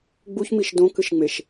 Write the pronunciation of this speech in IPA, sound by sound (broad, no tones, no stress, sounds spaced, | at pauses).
ɡ͡b u ç m i ʃ d õ k ɨ ʃ ŋ͡m e ʃ